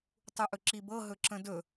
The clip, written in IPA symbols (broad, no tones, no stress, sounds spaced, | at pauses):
tˤ u ʔ ɵ ǁ i b ɤ ɦ ɵ ǁ ə̃ d ɵ